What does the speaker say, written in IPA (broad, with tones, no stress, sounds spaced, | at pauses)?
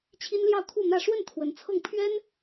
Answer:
t͡ɕʰ i˥ n l j ɑ˥˧ ʊ̯ kʰ u˥˧ n̪ ä˥˧ ʂ w ə˥˩ n t̪ʰ w ə˧˥ n t͡sʰ ɤ˥˩ ŋ pʰ ɥ ɛ˥ n